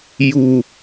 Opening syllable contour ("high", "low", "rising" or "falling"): low